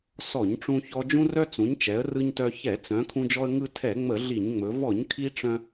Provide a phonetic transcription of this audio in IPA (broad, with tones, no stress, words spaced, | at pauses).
sɔ˧˩˧ɲʈ͡ʂũ˧çɔ˧ d͡ʒũ˧rœ˧ t͡sũ˩˧ɲt͡ʃɛ˩˧ə̯ rɯ˧ɲtœ˧ çɛ˧˩˧ t͡sœ̃˩˧ kʰũ˧d͡ʒɔ˧ə̯ ŋɯ˧ tʰɛ˧˩˧ŋ͡mə˧˩˧ ɮi˧˩˧ɲŋ͡mɵ˩˧ vɔ˧˩˧ɲkʰi˧ ʈ͡ʂœ̃˧